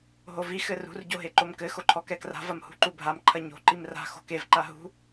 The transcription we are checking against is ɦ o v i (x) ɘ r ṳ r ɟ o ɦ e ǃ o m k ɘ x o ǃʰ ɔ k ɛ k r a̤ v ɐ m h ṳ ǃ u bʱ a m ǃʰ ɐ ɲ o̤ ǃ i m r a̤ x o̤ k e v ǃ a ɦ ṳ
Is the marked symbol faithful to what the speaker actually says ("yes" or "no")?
yes